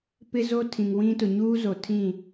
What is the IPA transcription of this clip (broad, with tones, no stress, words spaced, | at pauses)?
pɪ˦zo˦tʰĩ˨ŋwĩ˦ tʊ˨ɲuː˦zo˨ tʰĩ˦˨